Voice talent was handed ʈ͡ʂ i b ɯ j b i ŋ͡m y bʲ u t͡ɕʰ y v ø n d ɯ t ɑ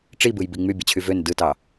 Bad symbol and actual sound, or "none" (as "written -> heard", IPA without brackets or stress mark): u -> ɯ